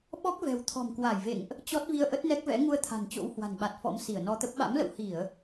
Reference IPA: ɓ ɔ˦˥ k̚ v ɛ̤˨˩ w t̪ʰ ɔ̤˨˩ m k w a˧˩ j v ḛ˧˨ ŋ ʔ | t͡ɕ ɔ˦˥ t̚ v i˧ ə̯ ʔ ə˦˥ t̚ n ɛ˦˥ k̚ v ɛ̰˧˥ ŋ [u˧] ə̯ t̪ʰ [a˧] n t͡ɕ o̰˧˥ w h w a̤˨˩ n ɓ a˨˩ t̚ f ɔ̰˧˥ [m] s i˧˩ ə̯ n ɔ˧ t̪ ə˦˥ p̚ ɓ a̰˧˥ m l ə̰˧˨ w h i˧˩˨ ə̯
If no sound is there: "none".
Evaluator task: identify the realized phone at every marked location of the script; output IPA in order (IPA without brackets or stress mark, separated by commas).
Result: u˧, a̤˨˩, m